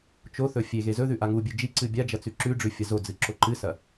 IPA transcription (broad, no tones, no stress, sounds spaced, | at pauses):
t͡ʃ o θ ɵ fʲ e ɣ e z ɵ ð ʉ ʔ a ŋ u bʲ ɨ d͡ʒ i ǀ ɨ bʲ a d͡ʒ ɐ t͡s ʉ ǁ ʉ ɖ͡ʐ ʉ fʲ ɐ z o d͡z ɨ ǁ o ǃ ɨ s ɐ